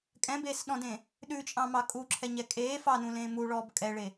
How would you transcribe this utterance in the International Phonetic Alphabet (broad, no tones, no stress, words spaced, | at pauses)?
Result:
kʼɛ̃beːsɗɔ̃dẽ | ɗʉt͡ʃʼɑ̃mɑ kʼuǁʰɛɲɛ kʼeː fɑnũlẽː muɭɔːb kʼɛɭe